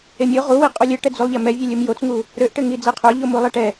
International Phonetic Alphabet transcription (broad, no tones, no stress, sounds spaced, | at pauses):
e mʲ o ʁ u w i qʼ u lʲ ɘ ʈ ɛ d͡z u lˠ ʎ ɛ m ɛ vʲ e lʲ u m j o t͡s ŋ u | ɾ ø ʔ ʈ ɘ ŋ i d͡z e qʰ ø ʎ o m u lˠ ɛ ʈ ɛ